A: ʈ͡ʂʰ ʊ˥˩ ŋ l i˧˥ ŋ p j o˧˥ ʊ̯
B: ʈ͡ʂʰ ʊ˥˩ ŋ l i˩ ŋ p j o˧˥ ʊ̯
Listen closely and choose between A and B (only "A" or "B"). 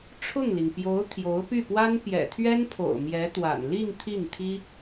B